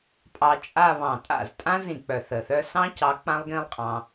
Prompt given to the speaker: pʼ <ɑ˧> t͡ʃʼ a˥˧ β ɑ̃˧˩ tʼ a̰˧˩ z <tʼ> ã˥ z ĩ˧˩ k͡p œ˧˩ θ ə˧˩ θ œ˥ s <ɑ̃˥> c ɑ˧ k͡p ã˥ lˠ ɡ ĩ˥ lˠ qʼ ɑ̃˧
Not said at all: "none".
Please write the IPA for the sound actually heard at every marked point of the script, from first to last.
ɑ˧, tʼ, ɑ̃˥

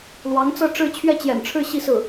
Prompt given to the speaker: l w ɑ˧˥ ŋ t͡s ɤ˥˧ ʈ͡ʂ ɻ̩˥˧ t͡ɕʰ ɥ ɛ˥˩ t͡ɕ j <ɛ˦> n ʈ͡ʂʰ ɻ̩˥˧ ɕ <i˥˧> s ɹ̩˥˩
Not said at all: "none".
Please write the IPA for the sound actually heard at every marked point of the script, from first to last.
ɛ̰˨˩, i˥˧

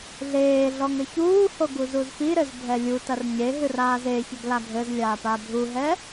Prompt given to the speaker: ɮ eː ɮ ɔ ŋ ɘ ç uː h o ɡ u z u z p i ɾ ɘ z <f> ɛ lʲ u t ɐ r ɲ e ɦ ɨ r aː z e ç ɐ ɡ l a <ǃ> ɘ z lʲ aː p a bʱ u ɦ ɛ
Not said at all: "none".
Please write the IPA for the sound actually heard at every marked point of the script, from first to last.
bʱ, ɡʱ

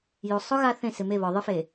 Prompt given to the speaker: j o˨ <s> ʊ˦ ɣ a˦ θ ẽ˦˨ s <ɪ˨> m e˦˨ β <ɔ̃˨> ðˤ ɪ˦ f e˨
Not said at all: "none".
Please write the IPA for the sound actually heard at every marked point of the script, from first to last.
sˤ, ɪ˨, ɔ˨

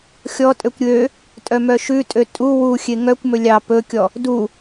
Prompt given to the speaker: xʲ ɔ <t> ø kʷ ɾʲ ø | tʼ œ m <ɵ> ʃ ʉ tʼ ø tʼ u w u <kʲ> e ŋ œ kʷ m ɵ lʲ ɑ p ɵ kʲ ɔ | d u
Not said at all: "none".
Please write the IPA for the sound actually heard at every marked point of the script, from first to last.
tʼ, œ, xʲ

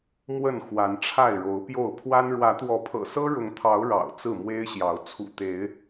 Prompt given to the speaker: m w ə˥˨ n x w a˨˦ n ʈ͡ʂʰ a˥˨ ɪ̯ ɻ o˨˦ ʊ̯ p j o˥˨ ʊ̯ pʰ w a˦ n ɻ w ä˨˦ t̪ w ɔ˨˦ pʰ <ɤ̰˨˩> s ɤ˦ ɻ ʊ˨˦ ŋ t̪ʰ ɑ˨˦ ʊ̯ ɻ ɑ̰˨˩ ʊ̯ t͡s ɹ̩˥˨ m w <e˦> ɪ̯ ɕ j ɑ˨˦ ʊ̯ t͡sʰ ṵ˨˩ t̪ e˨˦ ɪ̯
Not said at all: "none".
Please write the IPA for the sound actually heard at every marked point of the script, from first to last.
ɤ̰˨˩, e˦

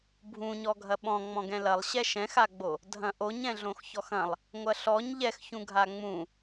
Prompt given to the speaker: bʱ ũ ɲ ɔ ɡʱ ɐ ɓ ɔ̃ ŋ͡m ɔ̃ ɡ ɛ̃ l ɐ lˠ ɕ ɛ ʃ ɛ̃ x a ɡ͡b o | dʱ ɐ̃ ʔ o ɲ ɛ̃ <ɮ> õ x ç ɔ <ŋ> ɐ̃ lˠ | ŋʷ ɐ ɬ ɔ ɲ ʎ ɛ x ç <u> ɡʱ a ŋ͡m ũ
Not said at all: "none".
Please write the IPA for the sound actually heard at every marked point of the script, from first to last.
ɮ, x, ũ

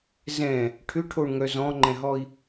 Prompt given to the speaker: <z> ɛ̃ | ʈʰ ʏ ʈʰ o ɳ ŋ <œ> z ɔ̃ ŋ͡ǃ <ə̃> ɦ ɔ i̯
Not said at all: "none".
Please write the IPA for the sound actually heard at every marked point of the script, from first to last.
z, œ, ɛ̃

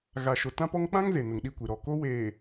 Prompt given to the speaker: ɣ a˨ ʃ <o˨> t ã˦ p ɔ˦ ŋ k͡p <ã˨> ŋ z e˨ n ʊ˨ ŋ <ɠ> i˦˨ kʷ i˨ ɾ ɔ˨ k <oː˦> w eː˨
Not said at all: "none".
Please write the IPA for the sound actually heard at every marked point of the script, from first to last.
o˨, ã˦, ɗ, o˦

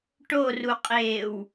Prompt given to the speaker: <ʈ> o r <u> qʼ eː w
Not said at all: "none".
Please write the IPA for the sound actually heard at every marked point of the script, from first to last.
ʈ, u

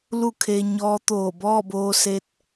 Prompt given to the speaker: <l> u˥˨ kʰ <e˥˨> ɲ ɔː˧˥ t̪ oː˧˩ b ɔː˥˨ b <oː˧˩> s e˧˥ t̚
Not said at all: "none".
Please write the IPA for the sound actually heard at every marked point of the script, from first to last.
l, e˧, oː˧

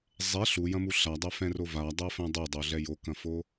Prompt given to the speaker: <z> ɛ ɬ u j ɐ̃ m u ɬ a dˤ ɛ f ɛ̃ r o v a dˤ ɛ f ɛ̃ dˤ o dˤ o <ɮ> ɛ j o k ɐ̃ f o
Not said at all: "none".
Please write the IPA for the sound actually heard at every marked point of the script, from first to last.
zˤ, ɮ

